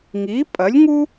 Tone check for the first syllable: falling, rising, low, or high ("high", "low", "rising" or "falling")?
rising